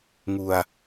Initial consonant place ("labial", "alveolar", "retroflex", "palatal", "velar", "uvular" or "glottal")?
velar